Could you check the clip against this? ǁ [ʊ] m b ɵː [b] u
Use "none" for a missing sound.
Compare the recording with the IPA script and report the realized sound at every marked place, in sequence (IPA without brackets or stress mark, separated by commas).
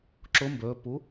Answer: ʊ, p